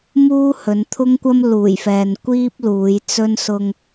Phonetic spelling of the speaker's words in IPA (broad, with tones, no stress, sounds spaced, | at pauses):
m uː˥ h ɵ˨˧ n t̪ʰ ʊ˥ ŋ kʷ ɐ˥ m l uː˨˩ j f ɛː˨ n kʷ iː˥ p̚ l uː˨˧ j t͡s ɵ˥ n s ʊ˧ ŋ